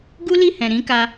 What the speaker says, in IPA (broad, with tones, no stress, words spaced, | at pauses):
ɡu˦li˦˨hɛ̃˨ ɾĩ˨˦ka˧